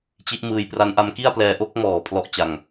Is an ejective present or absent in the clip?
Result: absent